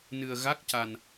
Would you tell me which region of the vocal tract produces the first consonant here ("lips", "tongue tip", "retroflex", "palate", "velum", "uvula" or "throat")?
tongue tip